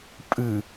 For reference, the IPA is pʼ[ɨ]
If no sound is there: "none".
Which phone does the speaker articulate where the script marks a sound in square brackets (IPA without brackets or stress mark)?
ɨ